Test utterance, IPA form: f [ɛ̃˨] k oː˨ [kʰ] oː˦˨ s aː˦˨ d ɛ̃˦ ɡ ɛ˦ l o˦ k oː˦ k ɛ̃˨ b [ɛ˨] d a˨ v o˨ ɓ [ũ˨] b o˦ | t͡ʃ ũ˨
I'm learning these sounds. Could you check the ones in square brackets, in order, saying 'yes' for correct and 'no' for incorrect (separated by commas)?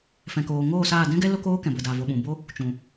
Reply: yes, no, no, yes